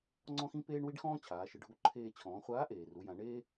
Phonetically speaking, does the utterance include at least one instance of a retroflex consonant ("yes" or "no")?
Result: yes